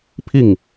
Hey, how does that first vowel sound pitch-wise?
falling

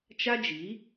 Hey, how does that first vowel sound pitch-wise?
high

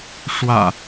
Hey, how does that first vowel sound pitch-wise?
low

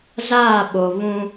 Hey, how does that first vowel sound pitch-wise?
falling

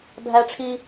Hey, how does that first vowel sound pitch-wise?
high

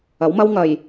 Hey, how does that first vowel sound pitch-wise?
rising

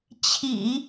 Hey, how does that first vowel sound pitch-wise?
low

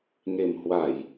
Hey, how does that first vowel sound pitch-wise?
low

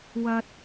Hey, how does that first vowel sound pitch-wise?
high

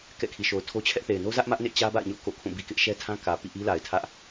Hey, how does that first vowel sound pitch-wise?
falling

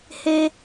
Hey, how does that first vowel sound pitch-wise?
high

